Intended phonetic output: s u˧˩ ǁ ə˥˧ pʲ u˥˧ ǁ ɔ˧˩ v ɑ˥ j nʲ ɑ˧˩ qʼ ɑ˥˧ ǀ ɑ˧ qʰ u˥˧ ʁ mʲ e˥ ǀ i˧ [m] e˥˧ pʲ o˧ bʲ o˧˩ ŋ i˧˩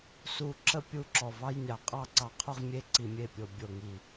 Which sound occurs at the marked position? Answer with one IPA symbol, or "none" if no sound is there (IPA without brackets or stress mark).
mʲ